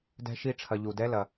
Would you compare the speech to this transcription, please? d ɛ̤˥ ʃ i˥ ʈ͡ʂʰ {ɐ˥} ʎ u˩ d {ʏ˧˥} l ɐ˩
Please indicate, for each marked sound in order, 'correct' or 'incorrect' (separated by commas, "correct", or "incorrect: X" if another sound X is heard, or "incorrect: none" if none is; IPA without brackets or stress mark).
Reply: incorrect: ɐ˧, incorrect: ɛ˧˥